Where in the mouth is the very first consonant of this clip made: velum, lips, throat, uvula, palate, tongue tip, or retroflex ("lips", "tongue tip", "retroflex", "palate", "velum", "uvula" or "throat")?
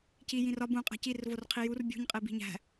palate